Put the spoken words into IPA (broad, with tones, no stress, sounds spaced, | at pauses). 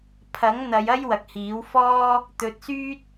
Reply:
pʰ ɐ˨˥ ŋ n̪ ɐ˨˧ j ɐ˥ j w ɐ˨ k̚ h iː˨˥ w f ɔː˥ | t̪ ɵ˧ t̚ s yː˥ t̚